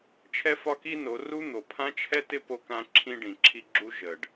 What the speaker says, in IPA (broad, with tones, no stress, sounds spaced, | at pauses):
t͡ʃʰ ɛ˦ f ɒ˦ k i˦ n o˨˦ r u˦ n̪ o˨ pʰ ã˦ t͡ʃʰ ɛ˦ t ɪ˦ p o˦ k ã˦ ǁʰ ĩ˦ ɖ ĩ˨ ǁʰ i˦ ɡ͡ǁ u˦ ʒ ə˨ ɖ